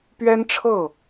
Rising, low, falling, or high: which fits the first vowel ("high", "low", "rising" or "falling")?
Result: high